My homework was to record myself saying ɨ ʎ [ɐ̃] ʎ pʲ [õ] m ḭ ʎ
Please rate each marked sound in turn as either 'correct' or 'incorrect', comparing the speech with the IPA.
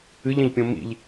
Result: correct, correct

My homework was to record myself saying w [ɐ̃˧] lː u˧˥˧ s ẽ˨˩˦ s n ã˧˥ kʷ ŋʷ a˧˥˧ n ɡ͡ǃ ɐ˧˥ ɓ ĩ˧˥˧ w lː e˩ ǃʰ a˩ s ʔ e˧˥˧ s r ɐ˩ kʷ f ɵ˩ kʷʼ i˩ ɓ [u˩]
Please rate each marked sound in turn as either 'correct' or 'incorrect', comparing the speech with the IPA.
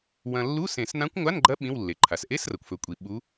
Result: correct, incorrect: u˧˥

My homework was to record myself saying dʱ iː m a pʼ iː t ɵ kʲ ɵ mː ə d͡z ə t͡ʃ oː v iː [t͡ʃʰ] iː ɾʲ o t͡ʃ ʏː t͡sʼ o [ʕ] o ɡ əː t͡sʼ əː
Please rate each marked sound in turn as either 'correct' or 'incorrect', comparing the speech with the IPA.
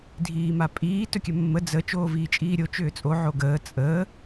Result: incorrect: t͡ʃʼ, correct

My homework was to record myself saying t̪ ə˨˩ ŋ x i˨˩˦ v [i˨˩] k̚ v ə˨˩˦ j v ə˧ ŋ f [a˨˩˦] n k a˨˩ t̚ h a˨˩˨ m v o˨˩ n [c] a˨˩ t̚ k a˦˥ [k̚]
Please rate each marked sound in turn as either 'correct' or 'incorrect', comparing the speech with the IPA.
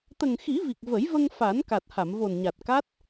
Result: correct, correct, incorrect: ɲ, incorrect: t̚

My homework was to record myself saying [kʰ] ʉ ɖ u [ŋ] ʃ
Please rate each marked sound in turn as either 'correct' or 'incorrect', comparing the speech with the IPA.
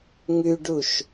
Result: incorrect: ŋ, incorrect: none

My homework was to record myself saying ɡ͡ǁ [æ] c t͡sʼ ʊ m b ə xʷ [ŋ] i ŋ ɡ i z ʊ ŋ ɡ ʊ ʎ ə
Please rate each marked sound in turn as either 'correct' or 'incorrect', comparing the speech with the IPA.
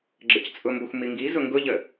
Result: incorrect: ə, incorrect: m

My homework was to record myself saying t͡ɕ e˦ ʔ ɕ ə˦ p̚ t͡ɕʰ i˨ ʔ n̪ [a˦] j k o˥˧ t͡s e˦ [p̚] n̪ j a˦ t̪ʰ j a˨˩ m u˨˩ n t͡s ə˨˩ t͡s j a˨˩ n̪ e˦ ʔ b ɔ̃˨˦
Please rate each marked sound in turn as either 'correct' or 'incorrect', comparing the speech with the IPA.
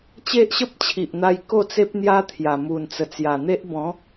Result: incorrect: a˧, correct

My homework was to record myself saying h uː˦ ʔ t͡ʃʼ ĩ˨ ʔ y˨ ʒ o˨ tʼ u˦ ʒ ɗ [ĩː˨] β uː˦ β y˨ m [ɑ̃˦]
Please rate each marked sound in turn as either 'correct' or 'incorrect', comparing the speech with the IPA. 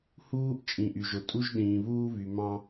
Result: correct, correct

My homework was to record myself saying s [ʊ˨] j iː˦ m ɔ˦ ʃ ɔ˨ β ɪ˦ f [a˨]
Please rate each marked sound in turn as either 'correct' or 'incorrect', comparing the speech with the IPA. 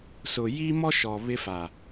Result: correct, correct

